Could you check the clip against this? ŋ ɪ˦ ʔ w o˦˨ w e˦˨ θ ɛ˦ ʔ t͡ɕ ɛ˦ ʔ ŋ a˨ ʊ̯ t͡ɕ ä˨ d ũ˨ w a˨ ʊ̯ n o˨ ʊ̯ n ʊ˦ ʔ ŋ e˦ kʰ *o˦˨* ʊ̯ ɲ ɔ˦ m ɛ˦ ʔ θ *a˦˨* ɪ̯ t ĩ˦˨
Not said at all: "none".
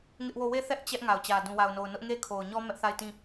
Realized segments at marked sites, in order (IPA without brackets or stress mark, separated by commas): o˨, a˦˨